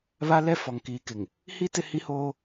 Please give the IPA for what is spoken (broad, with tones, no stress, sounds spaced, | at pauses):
β a˦ l ɛ˦ f ɔ˨ ŋ k iː˨ k ɪ˨ ŋ | h i˦ t ɪ˦ h i˦ h oː˦